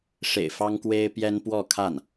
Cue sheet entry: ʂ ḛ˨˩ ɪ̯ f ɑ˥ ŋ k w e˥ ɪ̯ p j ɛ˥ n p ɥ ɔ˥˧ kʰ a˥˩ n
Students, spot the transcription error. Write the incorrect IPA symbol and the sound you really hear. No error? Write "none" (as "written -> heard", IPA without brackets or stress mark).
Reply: ɥ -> w